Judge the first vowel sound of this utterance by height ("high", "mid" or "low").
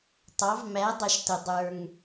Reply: low